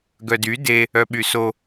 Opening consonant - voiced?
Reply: yes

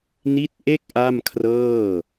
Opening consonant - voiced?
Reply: yes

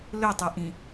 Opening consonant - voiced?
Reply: yes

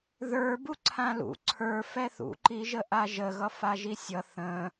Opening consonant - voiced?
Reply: yes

